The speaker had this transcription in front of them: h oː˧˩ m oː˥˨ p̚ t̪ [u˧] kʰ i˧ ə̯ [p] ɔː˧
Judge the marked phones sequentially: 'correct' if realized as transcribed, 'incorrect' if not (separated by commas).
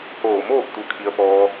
correct, correct